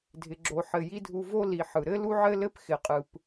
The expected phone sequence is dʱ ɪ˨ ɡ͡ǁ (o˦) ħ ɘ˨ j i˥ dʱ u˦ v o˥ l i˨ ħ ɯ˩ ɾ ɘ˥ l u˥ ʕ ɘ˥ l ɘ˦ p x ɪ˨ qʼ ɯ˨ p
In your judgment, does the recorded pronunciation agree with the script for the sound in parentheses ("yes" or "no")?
no